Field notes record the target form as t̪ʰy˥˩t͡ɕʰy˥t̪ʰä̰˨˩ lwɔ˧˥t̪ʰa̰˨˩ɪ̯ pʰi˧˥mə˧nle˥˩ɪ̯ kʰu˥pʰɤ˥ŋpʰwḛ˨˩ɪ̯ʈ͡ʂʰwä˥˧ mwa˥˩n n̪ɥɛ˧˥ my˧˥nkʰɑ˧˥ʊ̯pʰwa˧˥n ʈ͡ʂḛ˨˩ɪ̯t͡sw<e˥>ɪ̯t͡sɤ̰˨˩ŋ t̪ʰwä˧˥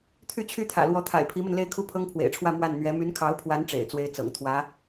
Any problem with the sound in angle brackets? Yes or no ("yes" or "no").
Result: no